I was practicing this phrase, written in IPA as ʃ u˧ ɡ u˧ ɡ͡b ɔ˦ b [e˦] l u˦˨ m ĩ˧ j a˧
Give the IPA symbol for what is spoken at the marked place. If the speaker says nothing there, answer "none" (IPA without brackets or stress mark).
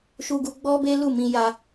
e˦